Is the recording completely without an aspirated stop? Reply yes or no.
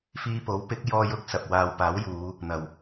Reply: yes